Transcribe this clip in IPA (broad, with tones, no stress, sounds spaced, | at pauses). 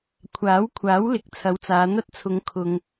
kʷʰ aː˨˥ w kʷʰ aː˨˥ w l ɪ˨ k̚ t͡sʰ ɐ˨˧ w t͡s aː˨˧ n̪ ɐ˥ t̚ t͡sʰ ʊ˧ ŋ kʰ ʊ˧ ŋ